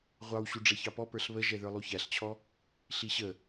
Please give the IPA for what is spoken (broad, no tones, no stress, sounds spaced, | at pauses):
ʁʷ ɑ w ɕ u ɖ͡ʐ ɛ ç ɑ p ɔ p ə˞ ɬ β ə ʒ ɛ ð ə˞ lˠ u ç æ ɬ t͡ɕʰ ɔ | ɬ i ɕ ə